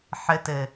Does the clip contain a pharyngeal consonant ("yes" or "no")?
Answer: yes